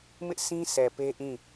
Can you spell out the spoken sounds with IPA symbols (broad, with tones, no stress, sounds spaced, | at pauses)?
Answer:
m ɪ˦ ʔ sʰ ĩ˦ s ɛ˨ p e˦ ʔ ĩ˦˨